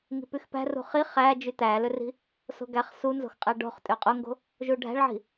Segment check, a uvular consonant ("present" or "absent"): present